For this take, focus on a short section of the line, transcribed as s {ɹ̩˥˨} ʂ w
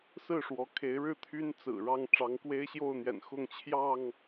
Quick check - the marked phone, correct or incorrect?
correct